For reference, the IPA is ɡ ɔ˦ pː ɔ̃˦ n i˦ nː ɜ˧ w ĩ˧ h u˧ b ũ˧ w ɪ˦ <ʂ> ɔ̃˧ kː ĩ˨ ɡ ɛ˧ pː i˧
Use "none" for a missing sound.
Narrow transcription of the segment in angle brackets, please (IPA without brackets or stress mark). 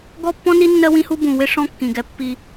ʂ